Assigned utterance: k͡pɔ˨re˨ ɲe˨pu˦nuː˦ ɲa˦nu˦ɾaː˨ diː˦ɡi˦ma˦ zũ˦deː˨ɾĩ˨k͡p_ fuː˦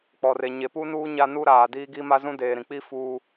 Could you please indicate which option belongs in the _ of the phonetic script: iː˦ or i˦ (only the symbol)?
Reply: i˦